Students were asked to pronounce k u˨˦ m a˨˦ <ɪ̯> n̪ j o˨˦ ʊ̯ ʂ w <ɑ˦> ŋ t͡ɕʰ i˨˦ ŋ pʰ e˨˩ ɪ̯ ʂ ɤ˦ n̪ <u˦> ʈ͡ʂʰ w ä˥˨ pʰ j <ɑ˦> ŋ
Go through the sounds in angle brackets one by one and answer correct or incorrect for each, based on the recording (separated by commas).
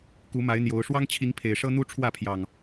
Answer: correct, correct, correct, incorrect